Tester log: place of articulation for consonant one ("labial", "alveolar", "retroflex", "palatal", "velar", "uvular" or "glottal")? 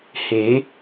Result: glottal